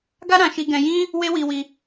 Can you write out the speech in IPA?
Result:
ɡa˦ɾã˧ʃi˧ ɡɛ̃˧jĩ˦ | we˦wi˧wi˧

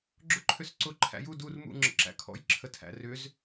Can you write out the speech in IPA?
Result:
ɡ͡ǁʊǃʰʏsǀʊ ǃʰæ̰ju dur mṵ ŋ͡ǁə̰ǁæ̰kʰɔ̰j ǁʰətʰæ̰ rʏz

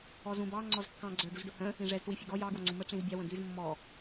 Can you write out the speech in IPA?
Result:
ɔzũbɑ ŋ͡ǀɔzkːɑ̃ ɡ͡ǀə˞ ɖuzɖʊhə̃ | ĩʐɛz twifʲʊɡɔ jɑ ɡwɔŋ͡ǀũmə ʈ͡ʂĩzbʲɑ wə̃d̪iz mːɔ

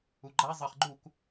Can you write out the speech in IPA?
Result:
uɡ͡ǃa zˤɐχ ɡ͡ǃuk

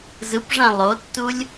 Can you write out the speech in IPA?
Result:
zɯpʐã lˠotːulʲ

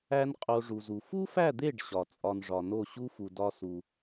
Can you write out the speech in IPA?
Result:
æ˦nqʼo˧ ʐu˨zu˨ fu˦fæ˦˨d̪e˦˨ɖ ɕɒ˨ t͡sʼɒ˦nʐɒ˧ no˦˨ɕu˦fu˨ dɒ˦su˧

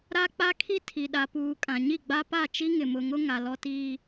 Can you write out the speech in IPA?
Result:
ɾa˦k͡pa˦kʰi˦ tʰi˨ɗa˨puː˨ kʼã˨ɲi˦˨ɡ͡ba˦pa˦˨ t͡ʃi˦ŋɪ˨mʊ˨ŋʊ˦ ŋa˨lɔ˦tiː˦

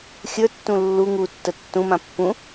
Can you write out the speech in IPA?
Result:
xʲə˞tːũ lːu ŋutːə tːũmã pːũ

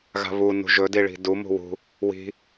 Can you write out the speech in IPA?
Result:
ɣa̤βu nṳʒɵdiɭi̤ du mṳwṳ | wi̤

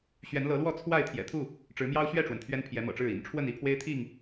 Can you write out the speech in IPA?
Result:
ɕɥɛ˨˦nlɤ˨˦lwɔ˥˨ t͡sʰwa˥˨ɪ̯ t̪ʰjɛ̰˨˩t̪ʰu˥˨ | ʈ͡ʂɻ̩˨˦mjɑ˦ʊ̯ɕɥɛ˥˨ʈ͡ʂwə˩n t̪ʰɥɛ˦npʰjɛ˨˦mɤ̰˨˩ʈ͡ʂɻ̩˥˨ ḭ˨˩nʈ͡ʂʰwə˥˨ni˥˨ pʰwe˦ɪ̯t̪ʰi˥˨ŋ

